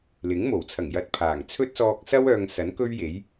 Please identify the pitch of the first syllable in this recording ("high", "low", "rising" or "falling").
rising